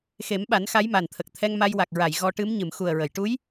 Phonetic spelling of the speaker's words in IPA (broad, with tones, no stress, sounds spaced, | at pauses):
x e˨˩˦ m ɓ a˨˩˦ n x a˧˥ j m a˨˩ n t̪ʰ ə˨˩ k̚ t̪ʰ ɛ˧ ŋ m a˧ j w a˨˩ k̚ ɹ a˨˩˨ j ɣ ɔ˧ ʈ ɨ˧˥ m ɲ ɨ˨˩˨ m x u˨˩ ə̯ ɹ ə˨˩˨ j ʈ u˧˥ j